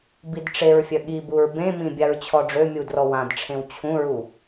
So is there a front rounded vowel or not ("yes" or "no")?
yes